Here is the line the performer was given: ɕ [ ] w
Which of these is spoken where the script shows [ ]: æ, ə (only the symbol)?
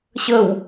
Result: ə